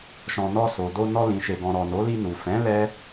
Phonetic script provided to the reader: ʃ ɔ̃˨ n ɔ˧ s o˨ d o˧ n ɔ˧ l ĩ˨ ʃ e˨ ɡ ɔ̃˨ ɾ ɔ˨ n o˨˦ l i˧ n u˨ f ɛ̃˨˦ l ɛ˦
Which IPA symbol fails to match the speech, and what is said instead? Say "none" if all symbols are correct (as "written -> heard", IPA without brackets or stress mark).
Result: none